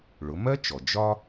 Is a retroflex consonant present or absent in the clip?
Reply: present